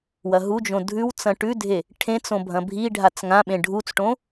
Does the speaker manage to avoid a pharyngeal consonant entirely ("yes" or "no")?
yes